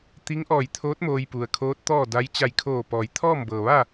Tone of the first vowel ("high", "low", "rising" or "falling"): rising